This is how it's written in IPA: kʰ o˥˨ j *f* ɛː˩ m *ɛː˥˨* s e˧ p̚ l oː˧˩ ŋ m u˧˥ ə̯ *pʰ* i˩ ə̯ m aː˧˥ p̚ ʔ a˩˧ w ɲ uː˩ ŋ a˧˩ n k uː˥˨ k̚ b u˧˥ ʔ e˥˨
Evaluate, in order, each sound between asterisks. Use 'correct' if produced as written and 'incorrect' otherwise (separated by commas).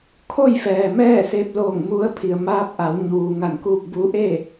correct, correct, correct